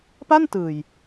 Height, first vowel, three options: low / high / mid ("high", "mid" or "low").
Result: low